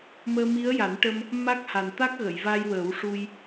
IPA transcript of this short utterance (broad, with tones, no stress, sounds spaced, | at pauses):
m əː˧ m i˧˥ ə̯ j a˨˩˦ n ʈ ə˧ m | m a˦˥ k̚ h a˨˩ n t̪ a˦˥ k̚ ɣ ə˨˩˨ j v a˧ j w ə˨˩˦ w ʂ u˧ j